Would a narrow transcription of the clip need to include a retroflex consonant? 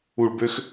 yes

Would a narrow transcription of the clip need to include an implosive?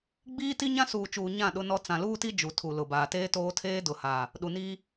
yes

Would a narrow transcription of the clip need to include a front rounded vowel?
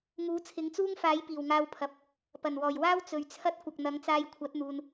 no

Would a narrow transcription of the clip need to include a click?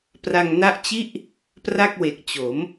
no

